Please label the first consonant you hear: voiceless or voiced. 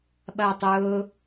voiced